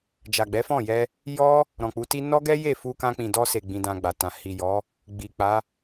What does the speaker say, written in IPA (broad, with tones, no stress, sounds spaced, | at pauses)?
d͡ʒ a˨ ɡ͡b ɛ˨˦ f ɔ̃˦˨ j ɛ˧ | j ɔ˦ | ɾ ɔ̃˨ k͡p u˨˦ t i˦ n ɔ˦ ɡ ɛ˦ j e˦˨ f u˧ k ã˧ k͡p ĩ˨ d ɔ˧ s e˨ ɡ͡b ĩ˧ d ã˧ ɡ͡b a˨ t ã˨ h i˨ j ɔ˨˦ | ɡ͡b i˨ k͡p a˨˦